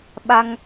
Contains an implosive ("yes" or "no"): yes